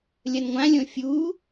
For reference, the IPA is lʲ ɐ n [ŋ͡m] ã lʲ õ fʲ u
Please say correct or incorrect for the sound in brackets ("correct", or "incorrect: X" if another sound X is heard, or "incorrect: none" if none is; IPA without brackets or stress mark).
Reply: incorrect: ŋʷ